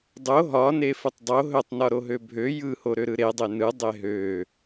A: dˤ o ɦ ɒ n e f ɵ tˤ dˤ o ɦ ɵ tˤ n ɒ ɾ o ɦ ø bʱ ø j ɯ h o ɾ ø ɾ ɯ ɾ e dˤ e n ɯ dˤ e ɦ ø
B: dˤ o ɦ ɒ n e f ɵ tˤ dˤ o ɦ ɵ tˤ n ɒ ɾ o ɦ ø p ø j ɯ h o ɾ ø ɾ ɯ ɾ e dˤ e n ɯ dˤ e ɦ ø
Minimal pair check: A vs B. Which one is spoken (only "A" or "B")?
A